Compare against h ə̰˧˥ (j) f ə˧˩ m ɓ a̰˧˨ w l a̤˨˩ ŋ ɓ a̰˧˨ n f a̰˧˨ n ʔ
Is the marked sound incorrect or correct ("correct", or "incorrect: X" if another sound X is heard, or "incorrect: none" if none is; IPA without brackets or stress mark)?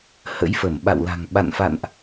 correct